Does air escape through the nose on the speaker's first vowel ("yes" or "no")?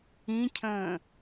yes